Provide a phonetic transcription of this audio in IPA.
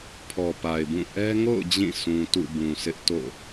pʰ ɔ˨ p a˨ ɪ̯ b ũ˦˨ ʔ ɛ˦ ŋ o̰˦˨ ʊ̯ d͡ʑ ĩ˦˨ sʰ ũ˨ t ṵ˦˨ b ũ˨ sʰ ɪ˦ ʔ t o̰˦˨

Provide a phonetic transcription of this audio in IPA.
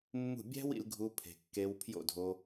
mː ṳ˦˨ bʲ æ̤˦ w ḭ˧ l ɡʱ u˧ pʰ e̤˨ kː e˧ w pʰ j o̰˦˨ dʱ o˧

